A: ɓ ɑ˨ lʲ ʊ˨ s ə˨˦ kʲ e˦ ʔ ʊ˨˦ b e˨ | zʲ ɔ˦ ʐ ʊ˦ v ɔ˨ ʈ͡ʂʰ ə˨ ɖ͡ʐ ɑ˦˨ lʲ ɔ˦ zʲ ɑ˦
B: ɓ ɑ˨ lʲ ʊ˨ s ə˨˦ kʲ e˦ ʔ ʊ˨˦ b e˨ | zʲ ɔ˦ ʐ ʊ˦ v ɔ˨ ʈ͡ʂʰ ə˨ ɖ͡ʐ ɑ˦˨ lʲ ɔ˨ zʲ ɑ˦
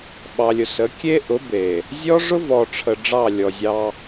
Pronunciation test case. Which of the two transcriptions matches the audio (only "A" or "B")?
B